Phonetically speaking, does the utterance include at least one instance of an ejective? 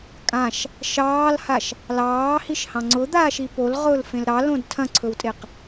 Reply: yes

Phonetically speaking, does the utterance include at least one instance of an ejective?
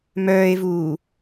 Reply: no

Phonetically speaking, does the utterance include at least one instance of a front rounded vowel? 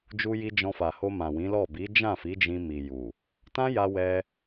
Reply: no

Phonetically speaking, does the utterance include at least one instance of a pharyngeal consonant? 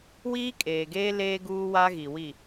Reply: no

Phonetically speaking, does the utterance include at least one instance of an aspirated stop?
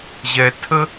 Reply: yes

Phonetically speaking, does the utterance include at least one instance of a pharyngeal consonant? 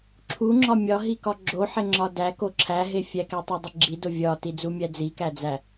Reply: yes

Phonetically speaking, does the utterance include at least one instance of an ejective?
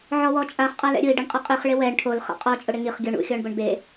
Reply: yes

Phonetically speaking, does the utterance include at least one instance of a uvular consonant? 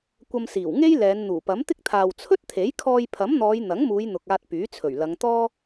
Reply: no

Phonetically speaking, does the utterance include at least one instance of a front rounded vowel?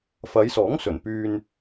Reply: yes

